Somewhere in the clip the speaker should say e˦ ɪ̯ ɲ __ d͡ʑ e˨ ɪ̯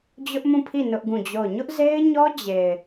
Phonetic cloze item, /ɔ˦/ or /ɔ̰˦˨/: ɔ˦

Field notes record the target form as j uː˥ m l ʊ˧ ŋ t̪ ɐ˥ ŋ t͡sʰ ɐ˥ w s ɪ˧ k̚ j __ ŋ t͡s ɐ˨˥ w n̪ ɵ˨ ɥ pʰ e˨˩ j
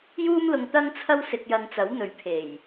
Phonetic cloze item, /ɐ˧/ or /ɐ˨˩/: ɐ˧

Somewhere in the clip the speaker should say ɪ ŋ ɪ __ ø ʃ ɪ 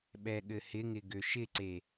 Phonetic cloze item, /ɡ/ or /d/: ɡ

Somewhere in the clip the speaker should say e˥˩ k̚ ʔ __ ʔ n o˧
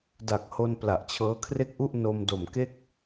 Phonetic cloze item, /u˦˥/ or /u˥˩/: u˥˩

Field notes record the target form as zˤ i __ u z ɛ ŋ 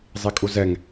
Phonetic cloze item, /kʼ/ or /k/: kʼ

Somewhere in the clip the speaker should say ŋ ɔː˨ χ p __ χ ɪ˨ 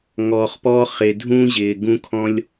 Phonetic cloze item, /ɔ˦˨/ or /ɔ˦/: ɔ˦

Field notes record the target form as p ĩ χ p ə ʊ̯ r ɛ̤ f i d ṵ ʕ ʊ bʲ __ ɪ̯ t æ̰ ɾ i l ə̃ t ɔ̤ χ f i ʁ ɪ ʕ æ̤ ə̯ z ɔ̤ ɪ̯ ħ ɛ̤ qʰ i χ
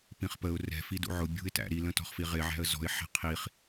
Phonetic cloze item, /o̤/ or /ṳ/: ṳ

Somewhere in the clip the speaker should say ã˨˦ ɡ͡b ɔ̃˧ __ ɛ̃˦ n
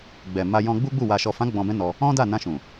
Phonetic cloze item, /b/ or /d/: b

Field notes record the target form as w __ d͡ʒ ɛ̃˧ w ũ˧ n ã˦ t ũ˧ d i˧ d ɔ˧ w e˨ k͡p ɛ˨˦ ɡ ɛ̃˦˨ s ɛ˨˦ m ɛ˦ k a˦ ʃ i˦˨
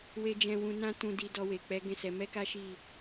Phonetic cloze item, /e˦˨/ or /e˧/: e˧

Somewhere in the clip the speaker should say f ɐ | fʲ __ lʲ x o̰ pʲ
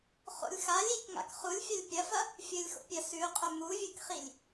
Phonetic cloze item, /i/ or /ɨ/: ɨ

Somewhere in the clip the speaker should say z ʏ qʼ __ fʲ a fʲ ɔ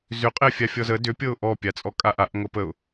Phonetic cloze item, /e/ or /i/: e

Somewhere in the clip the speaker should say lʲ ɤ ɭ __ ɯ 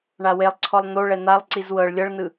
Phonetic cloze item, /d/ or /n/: n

